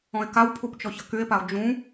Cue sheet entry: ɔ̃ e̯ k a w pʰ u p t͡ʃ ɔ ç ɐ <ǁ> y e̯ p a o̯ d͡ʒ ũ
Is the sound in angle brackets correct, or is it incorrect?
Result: incorrect